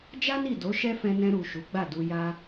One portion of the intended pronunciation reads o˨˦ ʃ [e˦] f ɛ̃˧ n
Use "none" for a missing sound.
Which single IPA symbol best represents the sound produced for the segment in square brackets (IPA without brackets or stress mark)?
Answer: ɛ˦